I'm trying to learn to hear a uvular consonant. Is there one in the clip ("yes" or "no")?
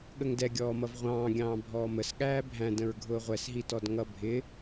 yes